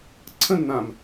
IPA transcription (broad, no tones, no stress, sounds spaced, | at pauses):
ǀʰ ə̃ nː ã m